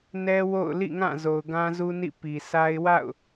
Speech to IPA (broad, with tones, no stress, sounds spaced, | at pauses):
n ɛ˦ w o̰˦˨ ʊ̯ l ḭ˦˨ ŋ ã˦˨ z o˨ ʊ̯ ɡ ã˦ z u˦ n ḭ˦˨ p i˨ sʰ a˦ ɪ̯ w a̰˦˨ ʊ̯